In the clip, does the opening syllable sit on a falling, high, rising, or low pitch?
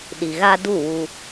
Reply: low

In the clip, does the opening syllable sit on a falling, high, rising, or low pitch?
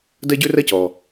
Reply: high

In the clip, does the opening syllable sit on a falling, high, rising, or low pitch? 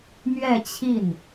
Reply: falling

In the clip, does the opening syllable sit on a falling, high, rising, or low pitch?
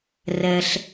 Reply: low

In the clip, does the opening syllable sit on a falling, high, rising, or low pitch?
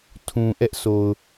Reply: low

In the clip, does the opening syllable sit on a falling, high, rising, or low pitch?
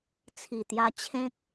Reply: low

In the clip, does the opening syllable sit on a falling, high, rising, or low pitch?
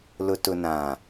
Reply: low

